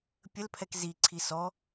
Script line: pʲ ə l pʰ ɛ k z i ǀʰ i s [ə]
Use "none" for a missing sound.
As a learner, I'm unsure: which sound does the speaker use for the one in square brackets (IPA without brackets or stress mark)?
ɔ